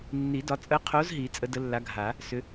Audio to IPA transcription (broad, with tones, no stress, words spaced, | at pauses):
nːi˨˩˦dɒ˨˦ t͡sʼə˨˦qʰo˨˦z ɦi˨˩˦t͡sʼə˨˦də˨˦lːa˨˦ ɡʱa˨˩˦ | sʏ˨˦